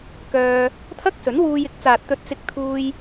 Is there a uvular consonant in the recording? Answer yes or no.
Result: no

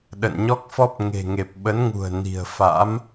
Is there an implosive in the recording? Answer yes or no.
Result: yes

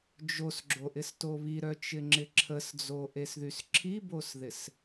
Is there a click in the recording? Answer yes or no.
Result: yes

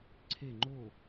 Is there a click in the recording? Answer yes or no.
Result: yes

